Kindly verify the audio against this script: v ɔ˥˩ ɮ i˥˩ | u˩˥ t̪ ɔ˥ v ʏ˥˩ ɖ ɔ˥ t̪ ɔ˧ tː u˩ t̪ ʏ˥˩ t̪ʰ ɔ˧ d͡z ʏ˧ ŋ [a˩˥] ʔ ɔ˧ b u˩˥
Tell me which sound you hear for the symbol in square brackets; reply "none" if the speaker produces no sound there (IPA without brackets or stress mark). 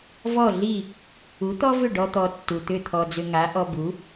a˩˥